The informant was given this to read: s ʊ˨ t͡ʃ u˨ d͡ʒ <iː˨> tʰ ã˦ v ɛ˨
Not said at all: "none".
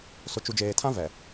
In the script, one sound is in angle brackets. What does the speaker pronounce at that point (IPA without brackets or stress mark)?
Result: eː˨